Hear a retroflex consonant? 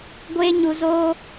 no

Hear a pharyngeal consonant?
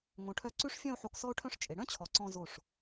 yes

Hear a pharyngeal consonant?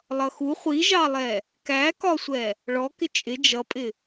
no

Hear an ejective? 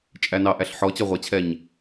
yes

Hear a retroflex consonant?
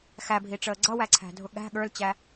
yes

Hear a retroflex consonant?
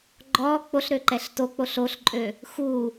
no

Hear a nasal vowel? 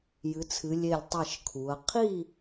no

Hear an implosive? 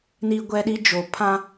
yes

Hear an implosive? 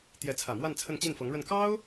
no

